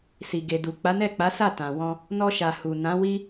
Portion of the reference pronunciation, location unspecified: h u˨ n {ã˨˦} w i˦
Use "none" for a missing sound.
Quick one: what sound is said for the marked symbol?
ã˨˦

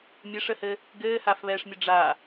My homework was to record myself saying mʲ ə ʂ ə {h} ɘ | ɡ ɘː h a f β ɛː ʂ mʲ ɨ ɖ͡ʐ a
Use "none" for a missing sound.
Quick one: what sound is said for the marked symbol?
h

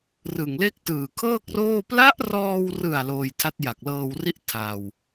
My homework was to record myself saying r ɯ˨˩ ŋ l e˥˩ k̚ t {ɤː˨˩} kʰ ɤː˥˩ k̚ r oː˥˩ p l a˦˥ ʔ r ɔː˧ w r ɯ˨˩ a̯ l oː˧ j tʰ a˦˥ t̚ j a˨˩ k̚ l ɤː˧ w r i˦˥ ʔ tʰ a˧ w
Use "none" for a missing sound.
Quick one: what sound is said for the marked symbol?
ɯː˨˩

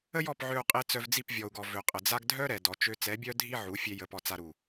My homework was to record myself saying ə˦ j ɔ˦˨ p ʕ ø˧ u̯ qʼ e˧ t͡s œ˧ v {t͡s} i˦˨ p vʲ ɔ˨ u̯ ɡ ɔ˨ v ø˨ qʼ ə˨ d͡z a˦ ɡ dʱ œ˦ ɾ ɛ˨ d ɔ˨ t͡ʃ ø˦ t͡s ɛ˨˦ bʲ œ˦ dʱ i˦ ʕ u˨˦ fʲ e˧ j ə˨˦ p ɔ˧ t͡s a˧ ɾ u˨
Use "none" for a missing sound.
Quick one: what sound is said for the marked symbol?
d͡z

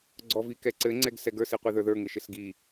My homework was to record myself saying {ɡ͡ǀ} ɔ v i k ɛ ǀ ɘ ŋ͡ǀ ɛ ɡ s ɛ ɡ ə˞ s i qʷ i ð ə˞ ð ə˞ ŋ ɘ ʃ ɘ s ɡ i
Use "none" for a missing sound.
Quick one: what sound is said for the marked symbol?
ɡ͡ǀ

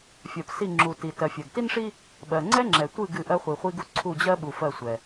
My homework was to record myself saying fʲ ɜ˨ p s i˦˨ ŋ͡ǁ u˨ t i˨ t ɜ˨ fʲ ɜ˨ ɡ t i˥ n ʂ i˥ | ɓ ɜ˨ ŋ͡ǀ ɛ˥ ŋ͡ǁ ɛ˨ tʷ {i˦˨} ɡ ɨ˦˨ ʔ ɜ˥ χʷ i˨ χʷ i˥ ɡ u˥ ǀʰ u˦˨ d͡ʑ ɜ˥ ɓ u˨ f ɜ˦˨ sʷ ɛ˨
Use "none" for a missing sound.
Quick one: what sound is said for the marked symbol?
ɨ˦˨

